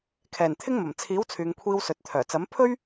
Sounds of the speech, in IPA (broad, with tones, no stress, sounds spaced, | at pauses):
kʰ ɛː˨˩ n t̪ʰ ɪ˥ ŋ m ɐ˨˩ m t͡sʰ iː˨˥ w t͡sʰ yː˨ ŋ kʷʰ iː˧ w s ɵ˨ t̚ t̪ʰ œː˨˩ t͡s ɐ˨˥ m pʰ ɵ˥ ɥ